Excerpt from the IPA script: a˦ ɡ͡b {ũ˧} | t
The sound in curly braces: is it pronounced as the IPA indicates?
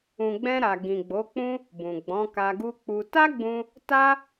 yes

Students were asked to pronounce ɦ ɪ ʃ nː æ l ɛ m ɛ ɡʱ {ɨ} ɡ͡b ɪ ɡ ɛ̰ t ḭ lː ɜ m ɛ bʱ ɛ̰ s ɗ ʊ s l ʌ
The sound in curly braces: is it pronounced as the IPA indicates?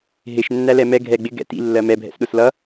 no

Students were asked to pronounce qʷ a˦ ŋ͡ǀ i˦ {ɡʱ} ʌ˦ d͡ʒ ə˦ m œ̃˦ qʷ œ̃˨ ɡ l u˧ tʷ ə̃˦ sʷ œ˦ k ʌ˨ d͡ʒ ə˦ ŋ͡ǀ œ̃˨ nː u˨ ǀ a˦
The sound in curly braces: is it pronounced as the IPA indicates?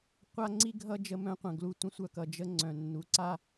yes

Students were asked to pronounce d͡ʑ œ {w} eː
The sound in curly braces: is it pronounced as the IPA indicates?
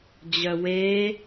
yes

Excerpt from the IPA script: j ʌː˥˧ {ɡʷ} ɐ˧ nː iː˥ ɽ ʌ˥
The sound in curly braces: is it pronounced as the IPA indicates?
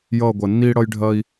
yes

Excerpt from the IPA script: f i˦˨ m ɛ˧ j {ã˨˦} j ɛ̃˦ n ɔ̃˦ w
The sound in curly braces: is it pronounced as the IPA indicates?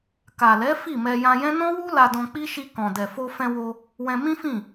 no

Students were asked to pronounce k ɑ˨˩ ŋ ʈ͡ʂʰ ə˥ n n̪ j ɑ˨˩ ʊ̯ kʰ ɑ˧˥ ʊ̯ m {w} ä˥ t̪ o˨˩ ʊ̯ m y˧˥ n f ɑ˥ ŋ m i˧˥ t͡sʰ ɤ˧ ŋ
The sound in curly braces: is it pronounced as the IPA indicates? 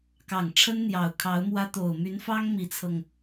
yes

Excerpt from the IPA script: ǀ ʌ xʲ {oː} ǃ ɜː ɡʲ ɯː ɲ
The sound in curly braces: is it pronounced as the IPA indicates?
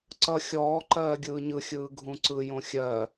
no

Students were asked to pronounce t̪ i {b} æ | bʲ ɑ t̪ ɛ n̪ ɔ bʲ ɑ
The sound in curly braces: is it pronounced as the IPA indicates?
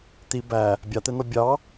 yes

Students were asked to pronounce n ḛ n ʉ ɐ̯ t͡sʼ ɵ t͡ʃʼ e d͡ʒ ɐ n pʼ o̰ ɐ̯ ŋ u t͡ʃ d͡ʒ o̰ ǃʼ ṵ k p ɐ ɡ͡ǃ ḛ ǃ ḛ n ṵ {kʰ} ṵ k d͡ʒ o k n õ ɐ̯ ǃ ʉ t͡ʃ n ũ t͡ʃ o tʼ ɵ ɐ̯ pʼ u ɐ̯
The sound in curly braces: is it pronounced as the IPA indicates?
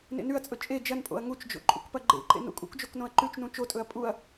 no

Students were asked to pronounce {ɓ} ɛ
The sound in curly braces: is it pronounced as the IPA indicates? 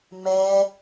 no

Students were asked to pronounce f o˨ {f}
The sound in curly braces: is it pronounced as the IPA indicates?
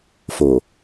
no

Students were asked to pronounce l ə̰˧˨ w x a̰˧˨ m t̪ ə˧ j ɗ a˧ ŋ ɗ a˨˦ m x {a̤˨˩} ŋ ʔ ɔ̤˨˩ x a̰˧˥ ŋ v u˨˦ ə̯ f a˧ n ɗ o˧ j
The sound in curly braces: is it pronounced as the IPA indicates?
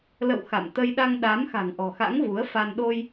yes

